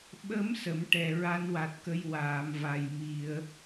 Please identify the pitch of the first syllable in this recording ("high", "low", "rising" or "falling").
rising